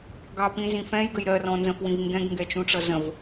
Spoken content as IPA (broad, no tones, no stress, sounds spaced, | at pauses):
ɡ ɑ p ĩ z ĩ f ɛ̃ j ɡ ə j ɾ ɜ r ɔ̃ n z ə̃ f w ĩ v ŋ ɡ ɛ̃ ɡ ŋ ɡ ɛ t͡ʃ ũ ʈ͡ʂ ʌ z ə̃ v